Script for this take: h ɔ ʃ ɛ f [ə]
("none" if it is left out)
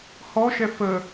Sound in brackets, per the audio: ə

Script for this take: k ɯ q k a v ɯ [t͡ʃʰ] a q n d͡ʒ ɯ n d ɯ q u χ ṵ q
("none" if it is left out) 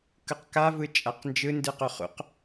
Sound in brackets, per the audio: t͡ʃʼ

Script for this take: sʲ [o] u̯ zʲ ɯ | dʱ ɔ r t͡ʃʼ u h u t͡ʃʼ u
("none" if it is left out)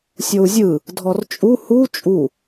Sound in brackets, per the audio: o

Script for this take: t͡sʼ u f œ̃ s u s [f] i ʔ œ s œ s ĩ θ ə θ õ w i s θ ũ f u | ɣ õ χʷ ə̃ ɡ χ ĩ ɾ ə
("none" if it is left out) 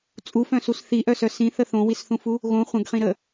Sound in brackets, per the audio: θ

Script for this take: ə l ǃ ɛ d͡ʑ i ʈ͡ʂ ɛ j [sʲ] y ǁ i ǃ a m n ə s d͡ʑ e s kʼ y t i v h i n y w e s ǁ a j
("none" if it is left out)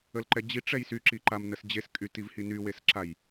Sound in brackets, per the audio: s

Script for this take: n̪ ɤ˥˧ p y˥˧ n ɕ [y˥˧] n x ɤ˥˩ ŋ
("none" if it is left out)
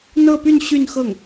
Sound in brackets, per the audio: y˥˧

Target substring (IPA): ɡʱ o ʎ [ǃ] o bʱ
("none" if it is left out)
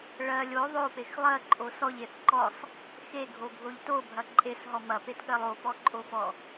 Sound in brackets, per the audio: t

